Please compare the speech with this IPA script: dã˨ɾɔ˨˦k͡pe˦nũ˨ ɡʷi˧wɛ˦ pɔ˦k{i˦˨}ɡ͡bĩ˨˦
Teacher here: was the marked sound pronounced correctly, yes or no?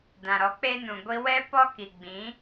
no